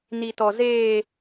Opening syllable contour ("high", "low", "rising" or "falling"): high